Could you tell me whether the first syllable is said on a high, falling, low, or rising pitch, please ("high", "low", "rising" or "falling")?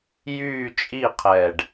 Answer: falling